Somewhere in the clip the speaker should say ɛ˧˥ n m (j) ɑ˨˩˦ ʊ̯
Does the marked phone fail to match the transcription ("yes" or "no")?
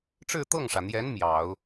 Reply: no